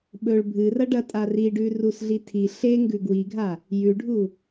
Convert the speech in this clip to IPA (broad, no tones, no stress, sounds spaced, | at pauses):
ɓ ɵ ɭ bʱ ɨ r ɐ ɖ ɐ tʼ a r i ɖ ʉ r u s ɮ i tʰ i ɬ e ŋ ɡ ʉ ɡ w i ɡʱ a | j ʉ ɖʱ u